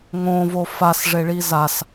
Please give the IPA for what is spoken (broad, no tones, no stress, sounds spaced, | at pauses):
ŋ õ v o f a s ʐ e ɭ i z a s